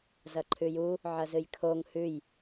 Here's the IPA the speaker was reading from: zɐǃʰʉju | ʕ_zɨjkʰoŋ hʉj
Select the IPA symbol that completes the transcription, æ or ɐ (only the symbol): ɐ